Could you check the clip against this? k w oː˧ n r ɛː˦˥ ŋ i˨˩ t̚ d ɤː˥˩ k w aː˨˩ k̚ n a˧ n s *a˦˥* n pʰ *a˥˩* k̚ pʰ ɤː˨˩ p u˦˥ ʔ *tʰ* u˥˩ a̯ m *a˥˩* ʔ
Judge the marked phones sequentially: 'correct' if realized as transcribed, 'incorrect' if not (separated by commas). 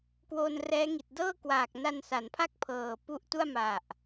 incorrect, correct, incorrect, incorrect